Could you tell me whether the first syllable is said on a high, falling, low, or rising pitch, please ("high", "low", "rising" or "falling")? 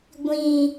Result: low